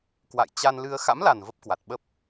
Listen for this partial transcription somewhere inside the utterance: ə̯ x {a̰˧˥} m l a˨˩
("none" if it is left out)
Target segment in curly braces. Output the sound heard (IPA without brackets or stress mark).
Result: a̰˧˥